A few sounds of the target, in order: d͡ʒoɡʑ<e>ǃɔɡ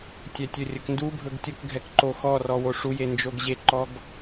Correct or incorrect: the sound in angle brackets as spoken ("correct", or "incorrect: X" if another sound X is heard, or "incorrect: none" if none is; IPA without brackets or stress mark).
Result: correct